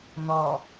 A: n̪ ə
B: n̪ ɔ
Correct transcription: B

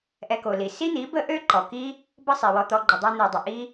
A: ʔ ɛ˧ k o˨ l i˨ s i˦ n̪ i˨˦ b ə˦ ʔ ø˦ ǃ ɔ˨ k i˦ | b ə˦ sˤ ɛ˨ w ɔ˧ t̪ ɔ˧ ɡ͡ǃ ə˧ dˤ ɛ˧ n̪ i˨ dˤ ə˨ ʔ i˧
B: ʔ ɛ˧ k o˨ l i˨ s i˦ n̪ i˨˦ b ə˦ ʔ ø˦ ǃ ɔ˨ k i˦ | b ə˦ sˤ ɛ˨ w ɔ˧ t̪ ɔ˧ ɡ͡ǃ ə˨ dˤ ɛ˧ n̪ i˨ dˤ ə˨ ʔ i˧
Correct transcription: B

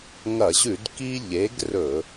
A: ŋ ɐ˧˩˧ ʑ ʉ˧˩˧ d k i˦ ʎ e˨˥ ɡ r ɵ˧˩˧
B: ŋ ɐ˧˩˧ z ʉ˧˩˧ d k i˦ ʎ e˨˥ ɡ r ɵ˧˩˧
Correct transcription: A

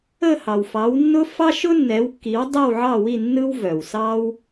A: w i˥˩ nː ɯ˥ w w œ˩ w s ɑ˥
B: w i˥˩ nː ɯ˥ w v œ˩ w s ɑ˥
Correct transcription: B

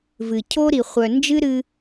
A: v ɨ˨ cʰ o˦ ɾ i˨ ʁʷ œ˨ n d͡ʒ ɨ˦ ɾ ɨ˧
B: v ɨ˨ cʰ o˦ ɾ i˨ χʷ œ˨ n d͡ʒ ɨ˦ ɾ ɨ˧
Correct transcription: B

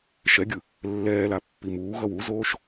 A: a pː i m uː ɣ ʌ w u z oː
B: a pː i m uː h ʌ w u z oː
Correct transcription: A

